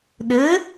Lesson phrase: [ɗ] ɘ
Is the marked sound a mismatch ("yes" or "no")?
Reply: no